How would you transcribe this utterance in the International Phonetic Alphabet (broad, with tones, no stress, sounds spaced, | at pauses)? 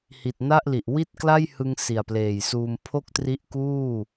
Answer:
h i˨˩ t̚ n a˥˩ ʔ l i˨˩ ʔ w i˥˩ t̚ k l a˥˩ j h ɯ˧ ŋ s i˨˩ a̯ p l eː˨˩ j s uː˧ m pʰ o˥˩ k̚ t r i˦˥ ʔ k uː˥˩